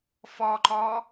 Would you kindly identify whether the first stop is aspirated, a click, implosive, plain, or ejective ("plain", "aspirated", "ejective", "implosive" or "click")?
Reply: click